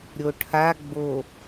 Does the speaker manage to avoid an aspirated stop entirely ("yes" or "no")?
no